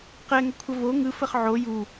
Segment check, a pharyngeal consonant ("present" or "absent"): present